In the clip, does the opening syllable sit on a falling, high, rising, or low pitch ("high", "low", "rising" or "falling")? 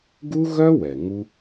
high